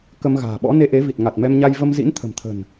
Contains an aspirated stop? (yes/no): yes